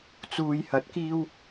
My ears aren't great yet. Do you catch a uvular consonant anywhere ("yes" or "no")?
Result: no